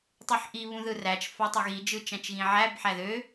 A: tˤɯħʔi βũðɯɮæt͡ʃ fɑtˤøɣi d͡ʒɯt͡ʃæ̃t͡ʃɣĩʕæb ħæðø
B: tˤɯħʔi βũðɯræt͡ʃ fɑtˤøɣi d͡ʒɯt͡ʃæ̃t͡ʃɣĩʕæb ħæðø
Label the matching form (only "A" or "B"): B